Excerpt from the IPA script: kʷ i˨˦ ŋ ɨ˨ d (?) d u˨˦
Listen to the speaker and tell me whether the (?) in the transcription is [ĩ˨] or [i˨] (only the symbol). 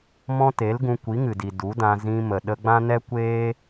i˨